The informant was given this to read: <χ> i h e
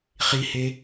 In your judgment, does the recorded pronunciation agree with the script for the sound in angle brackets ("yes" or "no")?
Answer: yes